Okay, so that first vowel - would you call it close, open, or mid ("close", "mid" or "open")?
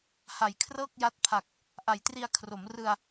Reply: open